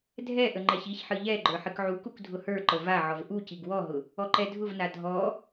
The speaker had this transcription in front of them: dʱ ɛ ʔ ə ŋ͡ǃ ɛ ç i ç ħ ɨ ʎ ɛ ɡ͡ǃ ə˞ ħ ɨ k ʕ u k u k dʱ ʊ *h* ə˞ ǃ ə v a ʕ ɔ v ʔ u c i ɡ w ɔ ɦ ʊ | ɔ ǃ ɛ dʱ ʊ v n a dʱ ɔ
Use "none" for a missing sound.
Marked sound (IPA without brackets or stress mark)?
h